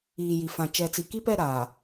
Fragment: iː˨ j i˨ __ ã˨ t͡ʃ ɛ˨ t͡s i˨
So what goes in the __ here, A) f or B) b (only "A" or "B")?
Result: A